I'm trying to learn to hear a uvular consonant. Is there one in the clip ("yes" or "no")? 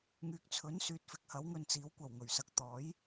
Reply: no